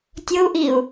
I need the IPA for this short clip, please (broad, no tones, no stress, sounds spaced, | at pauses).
tʲ o u̯ ʔ i u̯